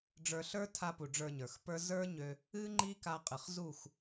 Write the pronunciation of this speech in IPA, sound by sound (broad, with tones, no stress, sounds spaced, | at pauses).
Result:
ɖ͡ʐ ə˞˧ ɬ ə˞˦ tʰ a˧ p u˨ ɖ͡ʐ ə˞˧ ɲ ə˞˨ x p ə˞˦ z ə˞˦ ɲ ø˧ | ɨ˦ ŋ͡ǃ i˦ k a˧ qʼ ɨ˨ χ z u˦˨ x